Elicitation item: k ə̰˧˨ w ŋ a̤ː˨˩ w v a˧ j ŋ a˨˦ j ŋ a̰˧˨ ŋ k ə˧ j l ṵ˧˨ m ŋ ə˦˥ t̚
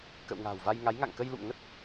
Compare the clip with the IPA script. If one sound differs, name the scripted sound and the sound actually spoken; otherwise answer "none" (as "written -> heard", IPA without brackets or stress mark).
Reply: none